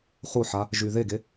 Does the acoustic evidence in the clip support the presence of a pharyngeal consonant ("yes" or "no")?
yes